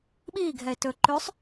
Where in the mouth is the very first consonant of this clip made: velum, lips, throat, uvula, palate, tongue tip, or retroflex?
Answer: lips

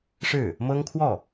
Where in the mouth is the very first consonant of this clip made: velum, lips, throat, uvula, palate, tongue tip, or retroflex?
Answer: retroflex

